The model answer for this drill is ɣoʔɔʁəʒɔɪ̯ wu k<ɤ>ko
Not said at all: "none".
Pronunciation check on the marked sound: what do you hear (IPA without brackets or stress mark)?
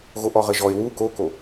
o